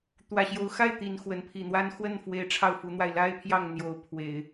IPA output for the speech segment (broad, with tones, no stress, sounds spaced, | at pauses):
t̪ w ä˨˩ ɕ j o˧˥ ʊ̯ x a˥˩ ɪ̯ t̪ i˨˩ n x w ə˧˥ n pʰ i˨˩ n̪ w a˥ n x w ə˥˩ n f w e˧˥ ɪ̯ ʈ͡ʂʰ ɑ˥˩ ʊ̯ f u˧˥ n̪ w a˧ ɪ̯ l a˥ ɪ̯ pʰ j ɑ˥˩ ŋ n̪ j o˧˥ ʊ̯ pʰ w e˨˩˦ ɪ̯